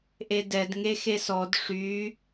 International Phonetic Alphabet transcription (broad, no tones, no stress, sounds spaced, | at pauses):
ʔ e d ɛ d ŋ e x e s ɔ d ʂ y